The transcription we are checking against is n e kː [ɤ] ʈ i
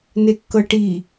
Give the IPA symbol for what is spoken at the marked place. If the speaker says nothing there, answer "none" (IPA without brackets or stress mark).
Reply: ɤ